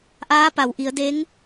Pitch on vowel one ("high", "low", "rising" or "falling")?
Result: rising